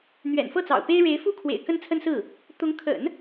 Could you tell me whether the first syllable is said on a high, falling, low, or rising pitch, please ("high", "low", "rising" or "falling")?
low